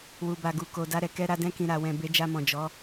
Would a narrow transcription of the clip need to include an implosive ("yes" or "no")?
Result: no